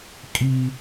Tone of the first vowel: high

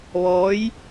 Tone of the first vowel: rising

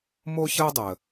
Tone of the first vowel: high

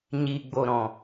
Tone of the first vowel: low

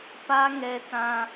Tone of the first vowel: high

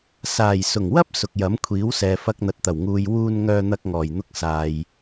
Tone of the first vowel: low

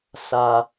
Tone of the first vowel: low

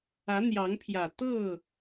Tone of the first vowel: rising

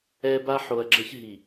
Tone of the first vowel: high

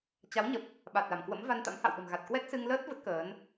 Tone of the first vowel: rising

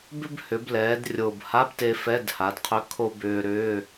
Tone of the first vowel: high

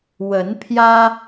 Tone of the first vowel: rising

